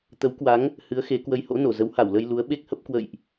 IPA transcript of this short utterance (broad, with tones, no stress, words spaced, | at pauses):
t̪ə˨˦wkwa˨˦ŋ | hɨ˨˦ə̯xe˨˦ kwə˨˦jho̰˧˥no˧˩ zə˨˦wha˧˩wlə˧j lu˨˦ə̯ɓe˦˥k̚hə˦˥p̚ kwə̰˧˨jʔ